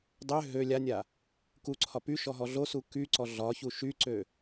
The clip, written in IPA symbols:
dˤ ø ɦ ø lʲ a nʲ a | k u ǀʰ ɒ p y ʃ ɔ ɦ ɔ ɮ o s u k y ǀ ɔ ɮ ɒ ç u ʃ y ǀ ø

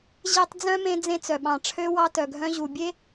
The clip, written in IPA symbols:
ʑ e˦ tˤ d͡z œ̃˥ m ẽ˦ d͡z ẽ˦ t͡s œ˩ ɓ ɑ̃˨ ʈ͡ʂʰ ø˥ w ɑ˥ t œ˨ ɡʱ œ̃˥ ʑ u˨ bʲ e˥

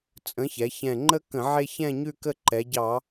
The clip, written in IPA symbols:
t͡sʼ ə̃˨˥ ç ɛ˩˧ ç ɛ̃˨˩ ŋ͡ǃ ə˦ k ə̃˧˩˧ ʕ e˦ ç ɛ̃˦˨ ɲ ʉ˦˨ k ə˦˨ ǃ ɛ˩˧ ɟ ɑ˧˩˧

